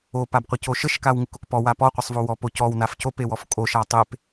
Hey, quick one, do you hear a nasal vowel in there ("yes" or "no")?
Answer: no